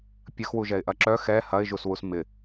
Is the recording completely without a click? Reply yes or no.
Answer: no